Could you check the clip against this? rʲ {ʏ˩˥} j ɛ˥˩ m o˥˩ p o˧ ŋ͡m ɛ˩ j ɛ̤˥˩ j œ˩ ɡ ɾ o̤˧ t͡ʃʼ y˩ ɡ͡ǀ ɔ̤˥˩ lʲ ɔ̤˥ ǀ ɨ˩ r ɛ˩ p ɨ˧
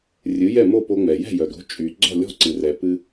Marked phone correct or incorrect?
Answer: incorrect